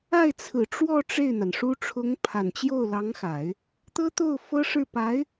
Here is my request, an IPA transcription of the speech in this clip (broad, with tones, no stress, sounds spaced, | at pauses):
a˥˩ ɪ̯ t͡sʰ ɹ̩˨˩ ʈ͡ʂ w ɔ˥˧ ʈ͡ʂ e˥˩ ɪ̯ n̪ a˩ n ʂ u˥ ʈ͡ʂʰ ʊ˧˥ ŋ pʰ a˨˩ n t͡ɕ j o˥˩ ʊ̯ l ɑ˧˥ ŋ x a˨˩˦ ɪ̯ | t̪ ɤ˥ t̪ o˥˩ ʊ̯ f ɤ˥ ʂ ɻ̩˥˩ p a˧˥ ɪ̯